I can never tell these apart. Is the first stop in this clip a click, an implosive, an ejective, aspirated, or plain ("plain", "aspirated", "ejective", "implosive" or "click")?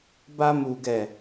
plain